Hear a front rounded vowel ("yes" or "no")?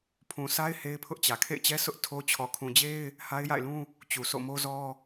no